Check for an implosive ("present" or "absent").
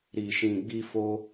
absent